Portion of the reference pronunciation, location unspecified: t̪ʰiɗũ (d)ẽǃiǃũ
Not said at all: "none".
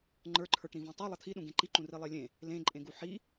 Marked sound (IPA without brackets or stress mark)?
ɡ